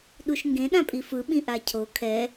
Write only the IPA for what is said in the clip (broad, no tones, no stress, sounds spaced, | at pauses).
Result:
ɗ u ʃ ŋ ɡ ẽ ɗ ã pʼ i f ɯ ɓ ĩ ʔ a cʰ o kʰ ɛ